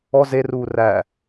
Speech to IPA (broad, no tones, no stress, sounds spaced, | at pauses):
ɔ z e r uː r æ